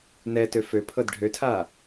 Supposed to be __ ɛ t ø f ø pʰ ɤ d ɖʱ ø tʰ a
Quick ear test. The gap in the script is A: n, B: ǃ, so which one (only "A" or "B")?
A